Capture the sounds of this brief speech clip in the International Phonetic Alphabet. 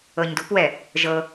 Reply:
ɤ ɲ d ṳ p w ɛ | ʒ ɤ

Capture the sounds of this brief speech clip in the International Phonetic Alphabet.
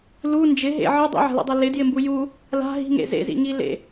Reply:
l u n d͡ʒ ɪ ɦ ḛ ʕ ɯ dˤ ḭ ʕ a̤ l ḭ dˤ e l ɪ d j ɪ m b u j u | l a̤ ɦ i̤ ŋ ḛ z ḛ z ḭ ŋ i l ḛ

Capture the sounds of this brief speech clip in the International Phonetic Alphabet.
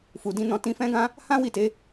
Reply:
f u˧ d ĩ˦ n ɔ̃˦ t ĩ˦ f ɛ̃˦ ɡ ã˦ | h ã˦ w i˦˨ t e˨˦

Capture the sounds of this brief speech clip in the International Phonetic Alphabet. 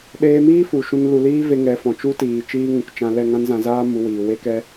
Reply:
ɗ eː˧ m iː˦ f u˨ ʃ ũ˧ n l u˨ l iː˦ v e˦ ŋ ɛ˨˦ f ɔ̃˨ t͡ʃ u˦ t iː˨ t͡ʃ iː˦ ŋ ũ˨˦ k t͡ʃ ã˧ l ɛ˦˨ ŋ ã˦ n z ã˧ z aː˦ m u˧ w iː˨ w e˦ k ɛ˦

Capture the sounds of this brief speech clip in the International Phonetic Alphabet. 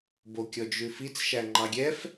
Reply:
b o kʲ ɔ d͡ʒ ʉ f i t͡s ʃ æ ŋ͡ǃ ɑ ɡʲ ɛ f

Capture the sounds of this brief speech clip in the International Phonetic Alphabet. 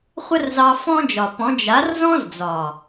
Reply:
χʷ ə˦ r z ɑ˧ f ɔ̃˦ d͡ʒ ɒ˨ p ɔ̃˨˦ d͡ʒ a˨˦ r z ɔ̃˦ z d͡z ɒ˨

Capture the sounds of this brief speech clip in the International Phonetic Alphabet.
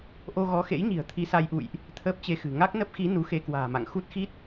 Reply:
ʔ o˧ ɣ ɔ˨˦ x ḛ˧˥ j ɲ i̤˨˩ ə̯ t̪ʰ i˧ s a˧ j ʔ ṵ˧˨ j ʔ | t̪ʰ əː˦˥ p̚ t͡ɕ e˧ x ɨ̤˨˩ ŋ a˦˥ k̚ n ə˦˥ p̚ x i˨˦ n u˨˦ x e˧ k w a̤ː˨˩ m a̰˧˨ ŋ x u˦˥ t̚ x i˦˥ t̚

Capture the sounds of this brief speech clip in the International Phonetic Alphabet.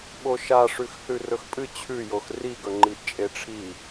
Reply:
ɓ o ʃ a ʂ ʉ x θ ʉ r ɵ x pʼ ɨ t͡ɕʰ ʉ j o x r i ɡ ɵ ŋ͡ǃ i ʔ t͡ʃʼ e ʈ͡ʂʰ i

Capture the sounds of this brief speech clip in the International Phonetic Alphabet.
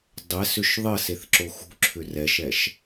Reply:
dˤ ɛ s ʏ ʃ ðˤ ɘ s e θ ǁ o x ṳ ǁʰ ʏ r ɛ ʃ ɛ ʃ

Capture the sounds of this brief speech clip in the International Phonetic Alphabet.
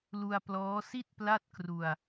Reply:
l u˧ a̯ p l ɔː˦˥ s i˥˩ t̚ p l a˥˩ t̚ k r u˧ a̯

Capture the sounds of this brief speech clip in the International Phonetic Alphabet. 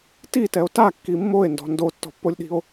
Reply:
t i t ɛ o̯ t a kː i mː o e̯ n d ɔ̤ n d o tː ɔ̤ pː o lʲ ɗ i̤ o̯

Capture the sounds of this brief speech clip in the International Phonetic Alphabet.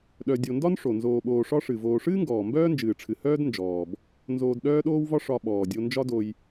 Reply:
ɗ œ˨ dʲ o˨ n d ɒ˥ n ʂ o˩ n z oː˨ ɓ oː˨ ʂ ɒ˦ ʂ ɨ˩ v oː˨ ʂ ɨː˥ ŋ ɡ ɔː˩ m b œː˥ n d͡ʒ ɨː˩ ʈ͡ʂʰ ɨ˩ h œː˥ d n d͡ʒ ɔː˩ b | n z oː˨ d ɗ œː˦ ɗ oː˦ w v ɒ˦ ʂ ɒ˨ ɓ ɔː˩ dʲ o˨ n d͡ʒ ɒ˦ d o˨ j

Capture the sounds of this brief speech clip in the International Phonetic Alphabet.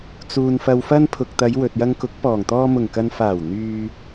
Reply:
t͡s uː˨ n f ɐ˨ w f ɐ˧ n pʰ ʊ˨ k̚ t̪ ɐ˨˧ j w ɵ˨ t̚ j ɐ˧ ŋ k ʊ˨˥ k̚ p ɔː˨˩ ŋ t̪ ɔː˧ m ʊ˨˩ ŋ k ɐ˨ n f aː˨˩ w n̪ yː˨

